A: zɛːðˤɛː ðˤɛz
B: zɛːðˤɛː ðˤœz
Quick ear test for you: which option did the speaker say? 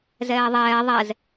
A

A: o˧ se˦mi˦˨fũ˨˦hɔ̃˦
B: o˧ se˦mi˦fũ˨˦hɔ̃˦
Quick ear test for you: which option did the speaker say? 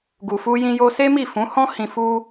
A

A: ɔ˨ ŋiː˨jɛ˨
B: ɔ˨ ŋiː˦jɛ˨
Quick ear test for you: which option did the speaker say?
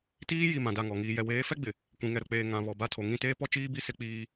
A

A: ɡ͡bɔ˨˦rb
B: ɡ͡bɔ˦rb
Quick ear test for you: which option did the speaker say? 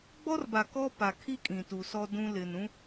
B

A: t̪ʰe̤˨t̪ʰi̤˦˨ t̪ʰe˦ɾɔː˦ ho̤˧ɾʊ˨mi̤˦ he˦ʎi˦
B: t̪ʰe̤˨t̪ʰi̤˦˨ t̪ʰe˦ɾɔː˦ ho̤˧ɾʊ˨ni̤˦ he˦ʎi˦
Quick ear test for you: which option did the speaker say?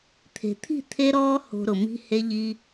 A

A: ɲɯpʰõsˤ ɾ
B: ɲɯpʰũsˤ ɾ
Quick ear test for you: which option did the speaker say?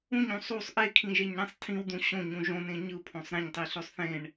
A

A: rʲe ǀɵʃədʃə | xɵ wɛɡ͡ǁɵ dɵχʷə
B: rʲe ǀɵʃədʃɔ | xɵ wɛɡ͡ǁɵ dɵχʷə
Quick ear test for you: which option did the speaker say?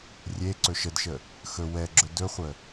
A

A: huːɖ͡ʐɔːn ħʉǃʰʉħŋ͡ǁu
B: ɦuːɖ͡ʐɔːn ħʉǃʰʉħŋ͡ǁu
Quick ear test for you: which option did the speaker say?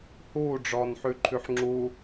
A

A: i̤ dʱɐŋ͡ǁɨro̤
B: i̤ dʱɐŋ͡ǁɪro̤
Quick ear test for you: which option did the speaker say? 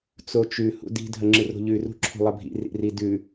A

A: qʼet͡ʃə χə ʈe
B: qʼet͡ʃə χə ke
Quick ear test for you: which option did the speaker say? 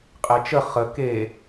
B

